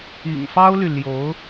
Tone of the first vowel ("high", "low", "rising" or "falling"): low